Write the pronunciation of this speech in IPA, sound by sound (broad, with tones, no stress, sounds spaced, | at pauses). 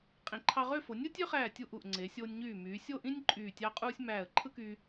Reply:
qʼ ĩ˩˧ ǃʰ ɑ˧ ʁ ø˥˧ f o˩˧ nʲ ɯ˥ tʲ ø˥ χ æː˧˩ tʲ u˧˩ ʔ u˧˩ ʔ ŋ͡ǀ e˩˧ sʲ oː˧ nʲ ɲ yː˧˩ m yː˩˧ sʲ o˥˧ ʔ ĩ˥ nʲ ǃʼ yː˧˩ tʲ ɑ˥ qʼ uː˥ sʲ m æː˧˩ ə̯ ǃʰ ɯ˥ k yː˧